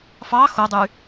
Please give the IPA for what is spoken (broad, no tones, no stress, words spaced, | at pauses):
fɑ xodˤy